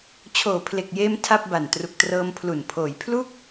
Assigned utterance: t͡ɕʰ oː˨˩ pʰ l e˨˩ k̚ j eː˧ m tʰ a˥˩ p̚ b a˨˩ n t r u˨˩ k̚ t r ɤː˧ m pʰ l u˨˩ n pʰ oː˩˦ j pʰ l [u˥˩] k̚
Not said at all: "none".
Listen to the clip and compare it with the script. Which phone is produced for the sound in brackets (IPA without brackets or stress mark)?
u˥˩